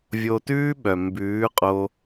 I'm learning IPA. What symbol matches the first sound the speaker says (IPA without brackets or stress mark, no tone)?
vʲ